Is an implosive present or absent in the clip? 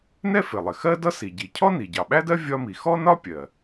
present